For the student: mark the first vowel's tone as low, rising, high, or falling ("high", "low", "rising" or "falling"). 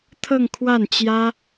falling